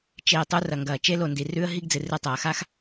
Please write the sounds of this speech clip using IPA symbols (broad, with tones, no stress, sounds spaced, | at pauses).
t͡ʃ eː˨ tˤ u˦ r ɐ˨ ŋ ɡ ɐː˨ t͡ʃ e˦ l o˨ n d i˨ r ʉː˦ ə̯ ɦ i˦ ɡ d͡z ɨ˨ r ɨ˨ tˤ ɐː˨ x a˦ x